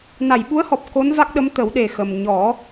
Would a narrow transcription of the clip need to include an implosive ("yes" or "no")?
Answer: yes